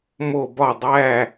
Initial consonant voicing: voiced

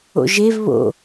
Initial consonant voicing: voiced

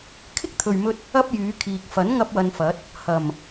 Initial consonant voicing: voiceless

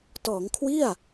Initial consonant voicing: voiceless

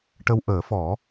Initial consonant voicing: voiceless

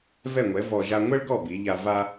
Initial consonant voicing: voiced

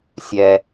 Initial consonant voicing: voiceless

